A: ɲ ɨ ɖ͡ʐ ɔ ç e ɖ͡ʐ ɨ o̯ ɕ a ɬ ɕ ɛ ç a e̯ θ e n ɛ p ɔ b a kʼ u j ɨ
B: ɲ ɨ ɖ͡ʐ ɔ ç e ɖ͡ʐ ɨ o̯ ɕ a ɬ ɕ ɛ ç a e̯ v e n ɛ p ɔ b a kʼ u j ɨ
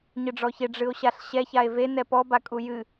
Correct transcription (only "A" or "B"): B